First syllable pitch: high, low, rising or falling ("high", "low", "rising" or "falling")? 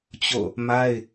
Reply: falling